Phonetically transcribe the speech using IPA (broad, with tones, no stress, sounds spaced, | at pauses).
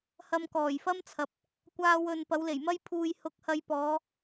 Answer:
h ɐ˧ m k ɔː˨˩ j f ɐ˥ m t͡sʰ ɐ˨ p̚ | kʷ aː˧ w ɵ˨ n p ɐ˨˥ w l e˨˩ j m ɐ˥ j pʰ uː˧ j h ʊ˧ k̚ h ɐ˧ j p ɔː˨˧